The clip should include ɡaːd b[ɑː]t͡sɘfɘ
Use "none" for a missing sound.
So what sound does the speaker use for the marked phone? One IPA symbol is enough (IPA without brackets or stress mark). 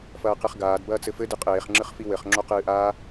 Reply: ɐː